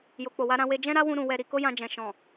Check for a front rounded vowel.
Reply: absent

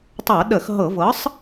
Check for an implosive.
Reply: present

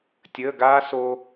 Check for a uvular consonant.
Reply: absent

